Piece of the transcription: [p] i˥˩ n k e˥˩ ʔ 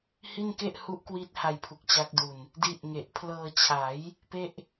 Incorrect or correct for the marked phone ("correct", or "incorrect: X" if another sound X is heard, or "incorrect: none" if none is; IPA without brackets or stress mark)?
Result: incorrect: h